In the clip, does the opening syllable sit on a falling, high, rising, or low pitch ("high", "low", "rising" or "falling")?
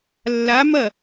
rising